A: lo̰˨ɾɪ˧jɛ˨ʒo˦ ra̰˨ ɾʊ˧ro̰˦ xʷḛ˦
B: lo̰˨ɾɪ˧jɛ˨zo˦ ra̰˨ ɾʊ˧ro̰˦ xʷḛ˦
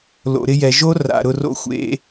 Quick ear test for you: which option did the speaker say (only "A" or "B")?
A